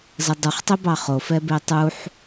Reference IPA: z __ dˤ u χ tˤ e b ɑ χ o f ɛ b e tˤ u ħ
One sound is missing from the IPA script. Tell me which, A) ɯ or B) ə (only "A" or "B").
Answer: B